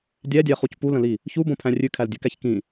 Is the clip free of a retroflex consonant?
yes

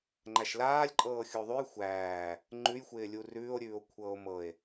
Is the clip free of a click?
no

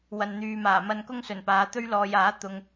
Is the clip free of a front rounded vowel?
no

